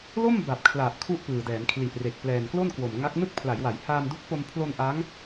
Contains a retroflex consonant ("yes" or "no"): no